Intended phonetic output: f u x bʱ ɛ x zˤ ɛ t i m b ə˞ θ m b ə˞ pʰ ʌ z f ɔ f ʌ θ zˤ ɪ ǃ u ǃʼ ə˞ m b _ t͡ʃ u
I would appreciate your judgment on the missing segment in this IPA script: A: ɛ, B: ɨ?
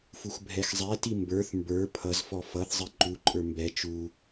A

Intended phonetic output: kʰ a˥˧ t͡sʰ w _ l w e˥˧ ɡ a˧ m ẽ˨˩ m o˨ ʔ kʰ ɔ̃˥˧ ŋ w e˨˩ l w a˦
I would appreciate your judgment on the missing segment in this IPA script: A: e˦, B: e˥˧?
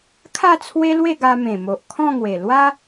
A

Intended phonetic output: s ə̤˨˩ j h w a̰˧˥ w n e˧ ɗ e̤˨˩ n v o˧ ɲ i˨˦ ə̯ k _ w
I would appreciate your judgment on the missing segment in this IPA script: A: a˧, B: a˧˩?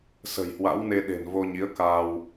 A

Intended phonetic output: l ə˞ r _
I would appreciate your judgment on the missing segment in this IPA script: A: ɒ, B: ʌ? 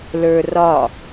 A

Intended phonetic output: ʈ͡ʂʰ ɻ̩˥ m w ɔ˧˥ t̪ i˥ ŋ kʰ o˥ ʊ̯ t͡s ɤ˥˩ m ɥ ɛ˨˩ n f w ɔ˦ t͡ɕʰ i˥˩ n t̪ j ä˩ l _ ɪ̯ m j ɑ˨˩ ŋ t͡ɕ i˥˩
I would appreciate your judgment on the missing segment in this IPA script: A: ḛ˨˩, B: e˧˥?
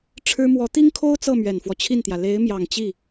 B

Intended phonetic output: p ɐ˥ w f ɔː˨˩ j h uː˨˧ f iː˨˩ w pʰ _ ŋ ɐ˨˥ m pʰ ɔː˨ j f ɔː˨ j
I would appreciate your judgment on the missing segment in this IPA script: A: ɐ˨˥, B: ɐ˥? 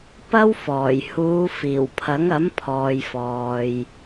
A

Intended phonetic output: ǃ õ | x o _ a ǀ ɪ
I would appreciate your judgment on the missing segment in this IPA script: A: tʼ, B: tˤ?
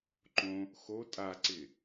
A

